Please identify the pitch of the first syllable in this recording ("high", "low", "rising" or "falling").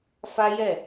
high